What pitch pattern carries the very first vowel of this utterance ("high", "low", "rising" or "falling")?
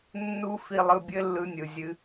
high